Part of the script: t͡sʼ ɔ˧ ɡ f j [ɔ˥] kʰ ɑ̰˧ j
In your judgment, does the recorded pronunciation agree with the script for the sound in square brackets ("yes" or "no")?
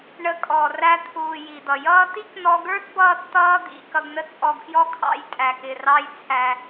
yes